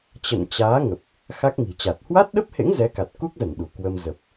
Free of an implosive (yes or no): no